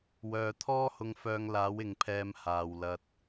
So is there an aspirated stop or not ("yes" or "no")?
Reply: yes